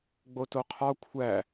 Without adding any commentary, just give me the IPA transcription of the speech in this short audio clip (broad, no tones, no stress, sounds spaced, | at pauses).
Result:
ɡ͡b o t o qʰ ɒ kʷʰ æ